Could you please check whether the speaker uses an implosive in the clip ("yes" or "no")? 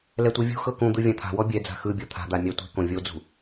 no